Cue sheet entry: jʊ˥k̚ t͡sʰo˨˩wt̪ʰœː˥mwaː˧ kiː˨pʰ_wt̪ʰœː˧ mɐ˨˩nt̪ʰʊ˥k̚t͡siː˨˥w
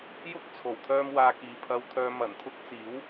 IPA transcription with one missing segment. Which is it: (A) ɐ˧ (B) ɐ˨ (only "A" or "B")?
A